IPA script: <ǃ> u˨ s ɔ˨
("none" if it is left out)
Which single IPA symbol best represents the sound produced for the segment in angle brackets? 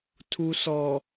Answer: tʰ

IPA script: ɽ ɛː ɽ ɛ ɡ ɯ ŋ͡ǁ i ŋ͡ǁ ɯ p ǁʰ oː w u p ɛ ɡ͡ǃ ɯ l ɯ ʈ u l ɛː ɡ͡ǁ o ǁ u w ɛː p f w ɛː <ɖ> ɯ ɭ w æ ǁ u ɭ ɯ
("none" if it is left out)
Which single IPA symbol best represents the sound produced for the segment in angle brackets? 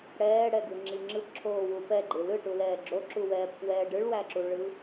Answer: ɖ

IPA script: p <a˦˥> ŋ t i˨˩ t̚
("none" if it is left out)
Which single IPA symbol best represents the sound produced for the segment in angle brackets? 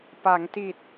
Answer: a˩˦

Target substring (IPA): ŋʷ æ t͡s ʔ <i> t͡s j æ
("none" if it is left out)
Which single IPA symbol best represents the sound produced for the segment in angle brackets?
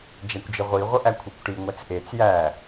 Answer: e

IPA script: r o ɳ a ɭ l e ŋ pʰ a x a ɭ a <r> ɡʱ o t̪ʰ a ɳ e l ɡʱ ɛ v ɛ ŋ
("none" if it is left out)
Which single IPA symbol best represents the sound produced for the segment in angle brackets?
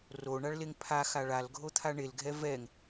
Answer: l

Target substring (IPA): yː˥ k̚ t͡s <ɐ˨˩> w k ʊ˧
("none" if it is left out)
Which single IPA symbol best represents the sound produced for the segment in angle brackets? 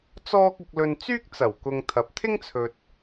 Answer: ɐ˨˩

